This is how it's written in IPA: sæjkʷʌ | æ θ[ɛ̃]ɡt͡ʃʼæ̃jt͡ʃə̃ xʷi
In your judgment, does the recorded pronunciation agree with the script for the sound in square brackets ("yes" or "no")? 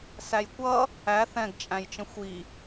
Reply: yes